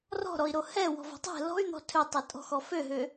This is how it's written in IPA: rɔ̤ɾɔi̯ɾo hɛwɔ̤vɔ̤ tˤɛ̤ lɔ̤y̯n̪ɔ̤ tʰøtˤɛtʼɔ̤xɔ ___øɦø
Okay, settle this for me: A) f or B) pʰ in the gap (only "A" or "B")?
A